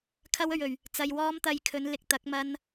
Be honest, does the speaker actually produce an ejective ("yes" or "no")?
no